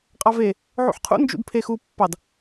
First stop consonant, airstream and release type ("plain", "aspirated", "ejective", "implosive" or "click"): ejective